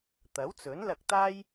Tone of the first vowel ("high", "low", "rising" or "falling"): rising